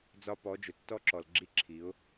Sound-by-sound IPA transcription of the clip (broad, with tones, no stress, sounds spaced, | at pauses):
d͡z ɒ˦ p ɔ˨˦ d͡ʒ ʊ˨ tː ɔ˦ ǁ ɔ˨ l ɡ͡ǁ i˦ ǁʰ i˨˦ ʊ̯